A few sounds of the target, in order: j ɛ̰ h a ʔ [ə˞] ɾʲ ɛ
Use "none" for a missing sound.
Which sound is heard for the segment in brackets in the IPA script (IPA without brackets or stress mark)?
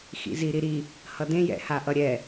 ʌ